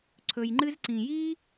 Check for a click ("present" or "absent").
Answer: present